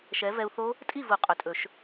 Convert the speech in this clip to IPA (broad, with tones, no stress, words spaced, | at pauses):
ʃɛ˨˥ vɛ˧u̯θo˦˥ | tʼi˥˨vu˨˩˦ qʼɵ˨˩tʼɵ˨˩˦ʃ